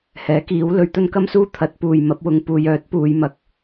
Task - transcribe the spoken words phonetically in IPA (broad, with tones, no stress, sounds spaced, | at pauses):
h ɛː˨˥ k iː˨˥ w l ɵ˧ ɥ t̪ ɵ˥ n k ɐ˥ m s uː˥ t̪ʰ ɐ˨˥ t̚ p uː˨ j m ɐ˨˥ p̚ w ʊ˧ ŋ p uː˨ j œː˨˥ t̚ p uː˨˧ j m ɐ˨ k̚